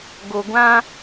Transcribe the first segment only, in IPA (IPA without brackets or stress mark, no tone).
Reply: ɡ